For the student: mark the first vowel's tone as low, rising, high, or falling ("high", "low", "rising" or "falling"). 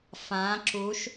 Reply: rising